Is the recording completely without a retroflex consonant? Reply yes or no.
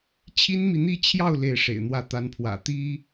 no